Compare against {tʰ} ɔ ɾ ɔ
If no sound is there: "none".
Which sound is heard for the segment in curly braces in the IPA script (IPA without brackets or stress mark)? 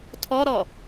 tʰ